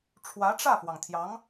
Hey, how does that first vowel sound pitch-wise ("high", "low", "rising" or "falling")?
rising